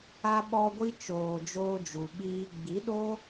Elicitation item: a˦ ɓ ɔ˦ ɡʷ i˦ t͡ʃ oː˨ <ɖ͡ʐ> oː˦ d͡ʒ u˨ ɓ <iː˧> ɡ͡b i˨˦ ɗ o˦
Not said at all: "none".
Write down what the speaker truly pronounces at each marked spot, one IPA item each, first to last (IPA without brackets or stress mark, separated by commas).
d͡ʒ, iː˧